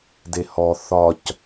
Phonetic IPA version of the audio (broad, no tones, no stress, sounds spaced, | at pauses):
d e h ɔ θ ɒ c